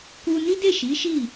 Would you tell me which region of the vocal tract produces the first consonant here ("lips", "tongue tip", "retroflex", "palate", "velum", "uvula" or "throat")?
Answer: velum